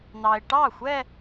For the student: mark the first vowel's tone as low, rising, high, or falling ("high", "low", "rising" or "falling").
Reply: low